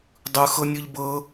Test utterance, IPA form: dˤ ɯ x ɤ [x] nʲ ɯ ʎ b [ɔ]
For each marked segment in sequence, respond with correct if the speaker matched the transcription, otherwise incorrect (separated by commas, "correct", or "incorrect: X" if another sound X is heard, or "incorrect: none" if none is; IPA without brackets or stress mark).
incorrect: none, incorrect: ɤ